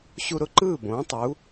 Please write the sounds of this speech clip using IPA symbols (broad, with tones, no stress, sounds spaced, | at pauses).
ɕ u˧ ɾ ʊ˥˩ ǃ ɯː˥˩ b õː˩˥ tˤ u˩˥